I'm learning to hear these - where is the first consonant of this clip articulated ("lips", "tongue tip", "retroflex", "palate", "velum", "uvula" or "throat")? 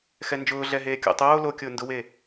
velum